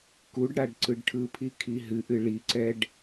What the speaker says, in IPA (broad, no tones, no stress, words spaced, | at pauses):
kuɖɽaɖ ǀɯɖʈʰɯpʰi kʰiɦɨʔɨ ɭiǀɛɖ